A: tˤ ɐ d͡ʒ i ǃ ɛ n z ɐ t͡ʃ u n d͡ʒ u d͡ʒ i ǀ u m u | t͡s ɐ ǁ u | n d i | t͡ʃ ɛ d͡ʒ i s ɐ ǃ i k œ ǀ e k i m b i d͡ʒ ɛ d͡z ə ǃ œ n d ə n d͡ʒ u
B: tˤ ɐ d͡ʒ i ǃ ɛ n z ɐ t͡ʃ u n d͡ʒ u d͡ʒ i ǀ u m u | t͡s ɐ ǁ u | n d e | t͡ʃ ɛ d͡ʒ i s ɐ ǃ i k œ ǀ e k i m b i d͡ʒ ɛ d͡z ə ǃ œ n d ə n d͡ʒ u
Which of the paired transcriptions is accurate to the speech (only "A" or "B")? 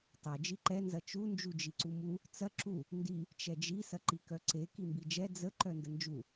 A